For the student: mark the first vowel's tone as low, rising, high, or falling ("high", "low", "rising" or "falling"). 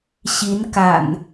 rising